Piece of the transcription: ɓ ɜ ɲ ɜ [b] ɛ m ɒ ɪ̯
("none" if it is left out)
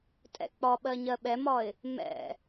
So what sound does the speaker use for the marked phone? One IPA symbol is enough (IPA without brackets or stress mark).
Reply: ɓ